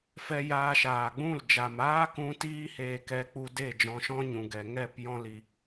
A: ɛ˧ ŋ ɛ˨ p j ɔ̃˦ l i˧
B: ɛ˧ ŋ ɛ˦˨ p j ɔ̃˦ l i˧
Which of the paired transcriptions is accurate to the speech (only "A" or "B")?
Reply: B